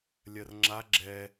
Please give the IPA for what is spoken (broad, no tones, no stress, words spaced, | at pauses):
lʲɜrŋ͡ǁa ɡ͡ǁɛ